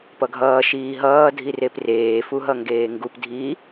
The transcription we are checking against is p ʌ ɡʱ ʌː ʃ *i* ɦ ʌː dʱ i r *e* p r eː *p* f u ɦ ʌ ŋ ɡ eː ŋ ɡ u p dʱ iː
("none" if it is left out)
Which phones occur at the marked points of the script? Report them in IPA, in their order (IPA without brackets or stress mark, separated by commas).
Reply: iː, e, none